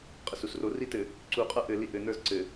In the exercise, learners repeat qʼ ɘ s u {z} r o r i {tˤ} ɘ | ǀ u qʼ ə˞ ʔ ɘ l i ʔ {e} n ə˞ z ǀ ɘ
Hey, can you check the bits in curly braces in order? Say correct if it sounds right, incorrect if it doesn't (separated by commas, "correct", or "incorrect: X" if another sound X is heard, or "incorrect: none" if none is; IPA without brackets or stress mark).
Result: incorrect: s, incorrect: t, incorrect: ɘ